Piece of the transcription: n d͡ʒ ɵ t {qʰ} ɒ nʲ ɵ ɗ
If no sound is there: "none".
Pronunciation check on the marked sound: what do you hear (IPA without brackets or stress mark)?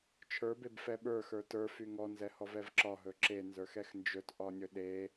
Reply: ʔ